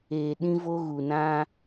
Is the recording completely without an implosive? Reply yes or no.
no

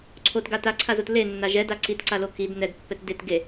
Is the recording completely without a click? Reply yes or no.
no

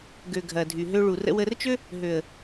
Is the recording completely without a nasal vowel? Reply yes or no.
yes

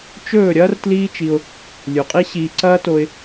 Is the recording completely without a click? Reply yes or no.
no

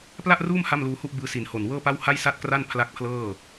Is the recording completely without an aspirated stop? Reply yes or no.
no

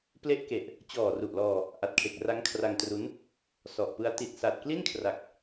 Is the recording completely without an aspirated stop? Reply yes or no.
no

